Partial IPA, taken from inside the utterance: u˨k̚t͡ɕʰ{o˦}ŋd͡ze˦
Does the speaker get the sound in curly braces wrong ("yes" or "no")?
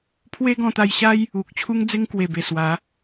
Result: yes